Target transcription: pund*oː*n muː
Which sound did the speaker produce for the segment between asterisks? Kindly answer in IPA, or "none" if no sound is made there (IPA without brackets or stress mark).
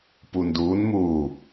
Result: uː